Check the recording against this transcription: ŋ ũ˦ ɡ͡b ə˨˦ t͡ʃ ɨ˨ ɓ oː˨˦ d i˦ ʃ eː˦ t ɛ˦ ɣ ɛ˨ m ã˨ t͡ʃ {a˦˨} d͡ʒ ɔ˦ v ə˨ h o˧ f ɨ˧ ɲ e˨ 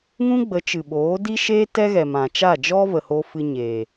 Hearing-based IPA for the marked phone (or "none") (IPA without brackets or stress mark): a˦˨